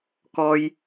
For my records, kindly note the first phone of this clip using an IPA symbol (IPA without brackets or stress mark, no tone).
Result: k